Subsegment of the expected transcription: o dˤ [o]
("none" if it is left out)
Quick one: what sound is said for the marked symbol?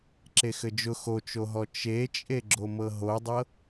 ɤ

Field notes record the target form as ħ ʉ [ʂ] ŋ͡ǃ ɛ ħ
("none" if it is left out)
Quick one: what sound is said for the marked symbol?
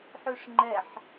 ʂ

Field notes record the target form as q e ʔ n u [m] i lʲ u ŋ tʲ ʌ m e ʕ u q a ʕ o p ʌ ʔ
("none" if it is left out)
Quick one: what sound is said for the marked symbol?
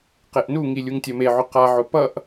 ŋ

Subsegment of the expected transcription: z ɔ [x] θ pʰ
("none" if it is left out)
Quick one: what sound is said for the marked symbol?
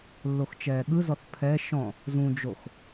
none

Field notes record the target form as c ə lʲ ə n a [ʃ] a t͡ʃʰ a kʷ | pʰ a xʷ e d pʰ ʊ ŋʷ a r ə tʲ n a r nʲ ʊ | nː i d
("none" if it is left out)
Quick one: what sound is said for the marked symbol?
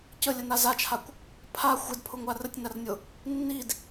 z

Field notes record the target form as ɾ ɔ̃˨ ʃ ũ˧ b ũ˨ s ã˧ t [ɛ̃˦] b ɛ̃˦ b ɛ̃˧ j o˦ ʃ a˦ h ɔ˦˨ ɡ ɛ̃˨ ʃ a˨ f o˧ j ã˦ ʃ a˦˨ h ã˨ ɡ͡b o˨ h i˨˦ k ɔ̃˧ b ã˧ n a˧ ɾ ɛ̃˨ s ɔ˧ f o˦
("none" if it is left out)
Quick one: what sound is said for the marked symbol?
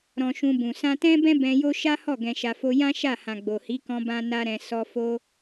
ɛ̃˦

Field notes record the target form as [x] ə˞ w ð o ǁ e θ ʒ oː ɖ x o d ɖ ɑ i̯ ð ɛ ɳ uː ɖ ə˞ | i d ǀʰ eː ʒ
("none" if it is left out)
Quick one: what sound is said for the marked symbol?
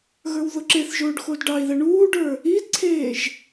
ɣ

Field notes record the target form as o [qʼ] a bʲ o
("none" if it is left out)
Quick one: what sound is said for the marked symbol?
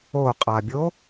qʼ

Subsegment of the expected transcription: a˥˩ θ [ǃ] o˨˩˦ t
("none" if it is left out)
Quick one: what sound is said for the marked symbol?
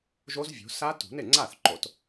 ǃ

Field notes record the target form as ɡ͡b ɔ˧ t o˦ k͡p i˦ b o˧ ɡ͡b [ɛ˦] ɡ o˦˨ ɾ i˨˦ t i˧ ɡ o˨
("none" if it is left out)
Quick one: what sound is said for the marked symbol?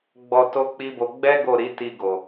ɛ˦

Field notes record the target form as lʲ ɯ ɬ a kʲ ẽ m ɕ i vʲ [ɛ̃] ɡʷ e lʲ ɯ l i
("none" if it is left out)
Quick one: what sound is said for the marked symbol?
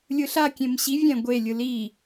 ɛ̃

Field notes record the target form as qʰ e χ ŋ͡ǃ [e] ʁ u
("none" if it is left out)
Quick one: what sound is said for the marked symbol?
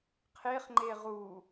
e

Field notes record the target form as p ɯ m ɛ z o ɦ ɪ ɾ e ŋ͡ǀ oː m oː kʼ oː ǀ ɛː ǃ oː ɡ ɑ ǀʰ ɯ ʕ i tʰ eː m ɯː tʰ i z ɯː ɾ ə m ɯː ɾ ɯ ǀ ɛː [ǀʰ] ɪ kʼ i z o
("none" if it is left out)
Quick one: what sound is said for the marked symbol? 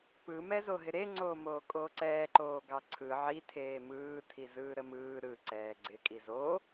ɡ͡ǀ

